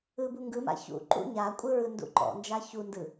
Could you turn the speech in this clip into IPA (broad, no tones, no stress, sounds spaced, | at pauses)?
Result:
ɯ b u ŋ ɡ ɯ m a̰ ç ṵ ǃ ṵ ɲ a kʷʼ ɯ ɹ ɯ n d ṵ ǃ ɔ̰ n d͡ʒ a ç u n d ɯ